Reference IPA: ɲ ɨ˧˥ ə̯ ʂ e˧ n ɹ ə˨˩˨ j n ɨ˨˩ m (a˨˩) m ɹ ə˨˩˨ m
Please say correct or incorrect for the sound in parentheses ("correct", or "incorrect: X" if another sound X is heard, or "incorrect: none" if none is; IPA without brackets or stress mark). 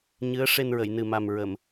correct